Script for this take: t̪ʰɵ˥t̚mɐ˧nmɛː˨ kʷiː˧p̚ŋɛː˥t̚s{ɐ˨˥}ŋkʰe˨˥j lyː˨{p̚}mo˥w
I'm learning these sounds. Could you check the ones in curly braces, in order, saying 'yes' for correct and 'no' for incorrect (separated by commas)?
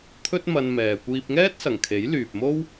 no, yes